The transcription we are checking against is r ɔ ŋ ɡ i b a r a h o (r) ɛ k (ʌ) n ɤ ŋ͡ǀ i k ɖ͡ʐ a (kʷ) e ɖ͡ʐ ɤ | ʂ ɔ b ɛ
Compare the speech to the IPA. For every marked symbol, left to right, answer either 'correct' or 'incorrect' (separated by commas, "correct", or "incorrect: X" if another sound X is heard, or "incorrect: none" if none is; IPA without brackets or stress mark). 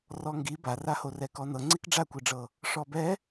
correct, incorrect: ɔ, correct